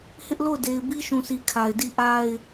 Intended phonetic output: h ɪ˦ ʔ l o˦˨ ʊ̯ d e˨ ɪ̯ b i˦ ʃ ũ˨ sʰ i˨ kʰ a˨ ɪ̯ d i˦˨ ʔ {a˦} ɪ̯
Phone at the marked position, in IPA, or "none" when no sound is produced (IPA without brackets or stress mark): a˦